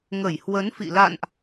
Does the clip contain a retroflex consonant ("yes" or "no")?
no